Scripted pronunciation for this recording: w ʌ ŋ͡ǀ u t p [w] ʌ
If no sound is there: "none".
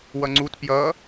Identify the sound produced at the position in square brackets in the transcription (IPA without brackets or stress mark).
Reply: j